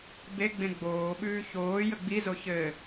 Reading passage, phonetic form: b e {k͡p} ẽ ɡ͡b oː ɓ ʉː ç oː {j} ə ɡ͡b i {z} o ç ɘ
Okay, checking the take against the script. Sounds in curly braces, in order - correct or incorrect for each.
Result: incorrect: ɡ͡b, correct, correct

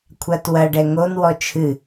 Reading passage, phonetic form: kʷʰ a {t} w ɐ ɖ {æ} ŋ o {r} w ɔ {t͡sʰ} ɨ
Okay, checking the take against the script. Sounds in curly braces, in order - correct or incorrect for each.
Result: correct, incorrect: ɛ, incorrect: n, incorrect: t͡ʃʰ

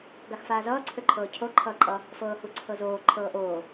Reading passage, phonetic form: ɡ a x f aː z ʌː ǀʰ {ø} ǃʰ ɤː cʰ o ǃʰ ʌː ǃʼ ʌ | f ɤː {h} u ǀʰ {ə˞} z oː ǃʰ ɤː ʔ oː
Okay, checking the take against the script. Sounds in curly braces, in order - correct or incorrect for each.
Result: correct, correct, incorrect: ɤ

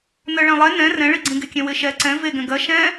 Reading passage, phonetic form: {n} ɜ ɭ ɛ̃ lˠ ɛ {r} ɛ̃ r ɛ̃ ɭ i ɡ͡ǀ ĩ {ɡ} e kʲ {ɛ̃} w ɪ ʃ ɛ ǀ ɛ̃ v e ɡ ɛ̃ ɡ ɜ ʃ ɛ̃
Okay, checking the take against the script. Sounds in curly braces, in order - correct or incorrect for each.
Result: correct, incorrect: n, correct, correct

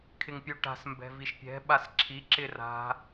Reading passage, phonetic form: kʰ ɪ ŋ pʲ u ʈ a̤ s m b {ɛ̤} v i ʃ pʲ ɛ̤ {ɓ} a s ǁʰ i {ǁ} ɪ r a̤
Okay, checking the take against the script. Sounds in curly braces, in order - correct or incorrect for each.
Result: correct, correct, correct

